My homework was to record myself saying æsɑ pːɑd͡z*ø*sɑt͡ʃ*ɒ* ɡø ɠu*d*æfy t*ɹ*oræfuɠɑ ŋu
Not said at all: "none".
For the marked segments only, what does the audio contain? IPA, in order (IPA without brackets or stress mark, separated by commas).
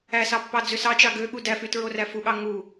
ø, ɑ, d, ɹ